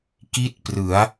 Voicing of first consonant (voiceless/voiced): voiceless